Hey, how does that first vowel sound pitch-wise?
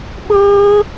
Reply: high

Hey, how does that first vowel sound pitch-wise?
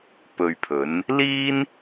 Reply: low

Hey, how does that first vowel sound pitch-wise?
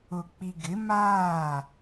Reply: low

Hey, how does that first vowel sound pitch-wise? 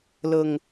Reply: low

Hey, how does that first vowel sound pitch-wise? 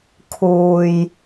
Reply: low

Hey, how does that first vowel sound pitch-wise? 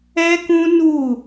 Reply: high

